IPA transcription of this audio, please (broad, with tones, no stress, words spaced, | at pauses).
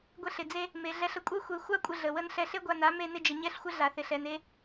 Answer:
ɡʷe˧ɬɪ˨d͡ze˧ | me˨ɮɛ˧ɬ ə˨kʷʼɛ˧xʷe˨ xʷa˦kʷʼɪ˧ɮə˨ wə˧n ɬɛ˧ɬe˦ɡʷa˧na˨˦ me˧nɪ˧d͡ʒə˨ ɲɛ˦ɬxʷɪ˦ ɮa˨θɪ˨ɬɛ˨n e˧